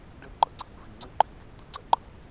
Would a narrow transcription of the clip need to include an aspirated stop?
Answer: yes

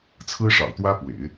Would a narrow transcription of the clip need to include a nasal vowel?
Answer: no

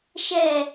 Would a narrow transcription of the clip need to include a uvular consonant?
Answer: no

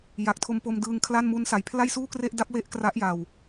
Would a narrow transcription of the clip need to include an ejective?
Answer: no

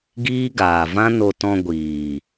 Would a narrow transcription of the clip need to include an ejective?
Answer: no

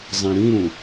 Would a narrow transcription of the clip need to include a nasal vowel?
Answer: yes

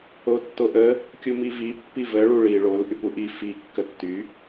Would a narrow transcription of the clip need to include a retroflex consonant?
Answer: yes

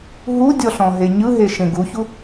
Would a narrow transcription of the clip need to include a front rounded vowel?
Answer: no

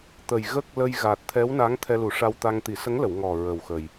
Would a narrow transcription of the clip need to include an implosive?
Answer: no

